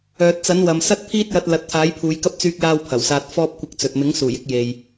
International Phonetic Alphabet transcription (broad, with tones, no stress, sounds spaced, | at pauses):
œː˨ t̚ t͡s ɐ˨˥ n w ɐ˨ m s ɐ˥ t̚ pʰ iː˥ t̚ j ɐ˧ t̚ l ɐ˨˥ t̚ t̪ʰ aː˨˥ j pʰ uː˨˧ j k ɐ˥ p̚ t͡s yː˥ k̚ j aː˥ w pʰ ɐ˨˩ w s aː˧ t̚ f ɔː˥ p̚ kʷ ɪ˧ k̚ t͡s ɵ˨ t̚ m ɪ˨˥ ŋ s uː˨˩ j ɪ˧ k̚ j e˨ j